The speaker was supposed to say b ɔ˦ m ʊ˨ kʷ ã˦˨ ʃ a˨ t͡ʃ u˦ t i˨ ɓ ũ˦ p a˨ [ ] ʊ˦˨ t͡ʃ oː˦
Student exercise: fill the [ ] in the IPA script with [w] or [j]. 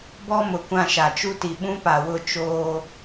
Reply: w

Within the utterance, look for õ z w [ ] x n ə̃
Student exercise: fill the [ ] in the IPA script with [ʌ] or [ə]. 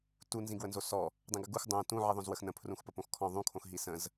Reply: ə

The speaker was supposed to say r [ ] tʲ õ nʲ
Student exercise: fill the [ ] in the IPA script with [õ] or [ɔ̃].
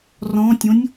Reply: ɔ̃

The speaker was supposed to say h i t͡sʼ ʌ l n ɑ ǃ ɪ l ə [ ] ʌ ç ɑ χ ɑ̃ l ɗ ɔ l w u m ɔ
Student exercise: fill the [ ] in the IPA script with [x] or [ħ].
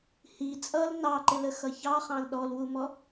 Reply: x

